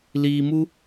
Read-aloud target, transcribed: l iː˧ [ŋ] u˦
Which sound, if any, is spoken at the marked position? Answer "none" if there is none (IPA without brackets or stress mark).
m